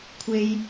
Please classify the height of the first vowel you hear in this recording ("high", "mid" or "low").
mid